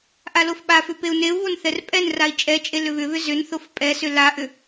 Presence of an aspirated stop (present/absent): absent